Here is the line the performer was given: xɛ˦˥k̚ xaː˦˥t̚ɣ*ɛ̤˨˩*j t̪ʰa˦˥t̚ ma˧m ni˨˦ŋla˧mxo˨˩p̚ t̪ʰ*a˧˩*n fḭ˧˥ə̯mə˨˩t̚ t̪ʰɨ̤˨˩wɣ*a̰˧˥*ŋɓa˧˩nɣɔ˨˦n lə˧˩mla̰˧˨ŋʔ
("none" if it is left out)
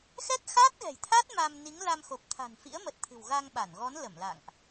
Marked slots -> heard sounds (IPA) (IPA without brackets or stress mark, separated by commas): ɛ̤˨˩, a̤˨˩, a˧